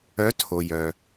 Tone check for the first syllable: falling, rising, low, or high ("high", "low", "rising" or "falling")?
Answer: rising